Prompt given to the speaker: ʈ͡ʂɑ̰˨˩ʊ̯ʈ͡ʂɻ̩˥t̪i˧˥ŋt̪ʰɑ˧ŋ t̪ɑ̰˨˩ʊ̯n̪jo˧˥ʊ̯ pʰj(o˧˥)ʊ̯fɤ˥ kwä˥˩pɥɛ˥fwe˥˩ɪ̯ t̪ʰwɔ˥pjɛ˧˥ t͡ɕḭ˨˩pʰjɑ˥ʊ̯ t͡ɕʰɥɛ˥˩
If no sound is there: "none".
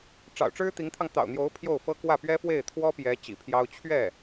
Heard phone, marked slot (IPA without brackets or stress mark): o˥˩